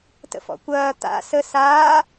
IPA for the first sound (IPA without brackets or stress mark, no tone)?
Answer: t